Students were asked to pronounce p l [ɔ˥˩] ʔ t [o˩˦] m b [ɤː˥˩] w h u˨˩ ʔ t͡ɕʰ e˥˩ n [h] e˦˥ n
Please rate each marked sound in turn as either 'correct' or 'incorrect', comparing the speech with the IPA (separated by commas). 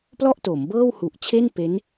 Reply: correct, correct, correct, incorrect